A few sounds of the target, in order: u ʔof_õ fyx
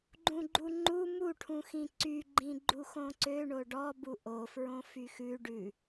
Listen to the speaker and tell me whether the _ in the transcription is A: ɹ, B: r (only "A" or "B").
A